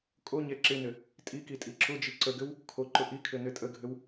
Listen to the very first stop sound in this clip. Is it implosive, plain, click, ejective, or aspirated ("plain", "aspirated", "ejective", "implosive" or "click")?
ejective